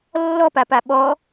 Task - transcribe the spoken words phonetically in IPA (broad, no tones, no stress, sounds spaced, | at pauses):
lː ɔ p a p a ɓ ɔ